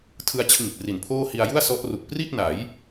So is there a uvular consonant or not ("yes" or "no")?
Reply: no